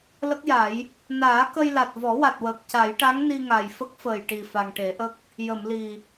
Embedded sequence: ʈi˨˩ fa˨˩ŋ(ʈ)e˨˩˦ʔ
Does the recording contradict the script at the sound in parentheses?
no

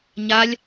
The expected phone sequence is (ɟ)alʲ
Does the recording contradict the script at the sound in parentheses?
yes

